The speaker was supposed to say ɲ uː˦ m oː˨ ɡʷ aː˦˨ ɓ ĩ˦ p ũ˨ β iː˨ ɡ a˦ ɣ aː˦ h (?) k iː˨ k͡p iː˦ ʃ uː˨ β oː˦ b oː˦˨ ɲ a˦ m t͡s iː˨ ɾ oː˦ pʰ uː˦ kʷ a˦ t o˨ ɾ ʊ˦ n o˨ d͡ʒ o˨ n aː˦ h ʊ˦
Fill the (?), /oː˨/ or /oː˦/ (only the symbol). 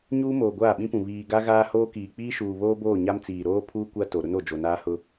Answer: oː˦